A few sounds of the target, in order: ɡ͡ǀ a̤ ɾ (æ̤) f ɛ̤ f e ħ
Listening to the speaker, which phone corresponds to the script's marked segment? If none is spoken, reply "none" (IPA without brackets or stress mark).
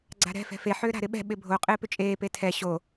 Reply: ɛ̤